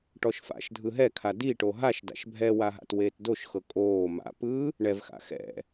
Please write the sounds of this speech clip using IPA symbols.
ʈ ɔ ʃ f a̰ ʃ dʱ ɯ ɦ ɛ kʰ a d i ʈ o ɦ a ʃ d a̰ ʃ bʱ ɛ w a ɦ a̰ t w eː t d o ʃ x ɤ kʼ oː m a̰ p ɯː | ɳ ɛ v x a̰ x ɛ̰

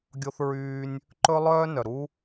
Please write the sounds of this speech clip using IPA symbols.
ɡʲ o˦ θ ɹ yː˦ nʲ | ǃ ɵ˦ lˠ œː˦ n œ˨ ɾ u˦

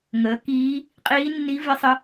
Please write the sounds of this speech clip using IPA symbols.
ŋ əː˩˥ k iː˧˥ | qʼ iː˧˥ nː i˧˥ v ɪ˧˥ sˤ ə˧˥

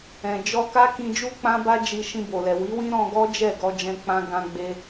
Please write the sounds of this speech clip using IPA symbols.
ɛ̃˨ d͡ʒ ɔ˧ k a˦ k ĩ˧ d͡ʒ u˦ k͡p ã˦ b a˦ d͡ʒ i˧ ʃ ĩ˧ b o˨ l ɛ˨ w i˨˦ w ĩ˦ ɾ ɔ̃˧ ɡ ɔ˦ d͡ʒ ɛ˦˨ ɡ ɔ˧ d͡ʒ ɛ̃˦ k͡p ã˦ ɡ ã˧ ɡ͡b e˧

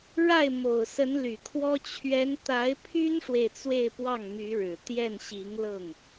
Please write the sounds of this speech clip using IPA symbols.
ɻ a˥˩ ɪ̯ m o˨˩ ʊ̯ s ə˧˥ n l y˨˩ kʰ w ɔ˥ t͡ɕʰ ɥ ɛ˧˥ n t̪ a˧˥ ɪ̯ pʰ y˥ n ʂ w e˨ ɪ̯ t͡s w e˥˧ ɪ̯ p w ɑ˥˩ ŋ m y˧˥ ɻ ɻ̩˨˩ t̪ j ɛ˥˩ n ɕ i˧˥ ŋ l ɤ˥˩ ŋ

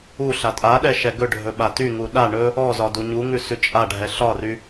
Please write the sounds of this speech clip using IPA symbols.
u ɬ a tʼ a ɗ ɛ ʃ ɛ ɡ ɵ ɖʱ ɵ ɓ a t y ŋ u ɗ a ɳ ɵ | ɔ z ɒ d u ɲ u ŋ ʉ s ʉ t͡ʃʼ a ɖʱ ɛ ɬ ɒ r y

